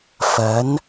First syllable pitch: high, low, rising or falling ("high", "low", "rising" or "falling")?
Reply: rising